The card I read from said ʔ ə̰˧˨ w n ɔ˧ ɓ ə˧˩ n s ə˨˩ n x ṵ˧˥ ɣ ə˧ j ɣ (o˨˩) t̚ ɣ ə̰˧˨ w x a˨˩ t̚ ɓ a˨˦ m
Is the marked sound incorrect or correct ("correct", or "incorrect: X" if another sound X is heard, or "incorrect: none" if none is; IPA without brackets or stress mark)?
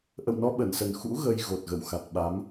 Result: correct